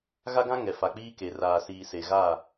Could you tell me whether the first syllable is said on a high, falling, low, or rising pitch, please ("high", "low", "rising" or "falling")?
high